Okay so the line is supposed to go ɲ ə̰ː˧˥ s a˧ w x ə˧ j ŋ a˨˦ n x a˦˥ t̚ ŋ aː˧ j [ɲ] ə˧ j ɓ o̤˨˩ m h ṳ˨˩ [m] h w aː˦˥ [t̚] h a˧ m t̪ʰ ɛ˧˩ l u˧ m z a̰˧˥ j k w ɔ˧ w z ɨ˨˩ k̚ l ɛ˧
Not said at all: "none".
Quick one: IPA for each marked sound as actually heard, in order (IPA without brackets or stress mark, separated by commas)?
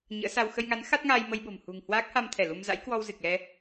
m, ŋ, k̚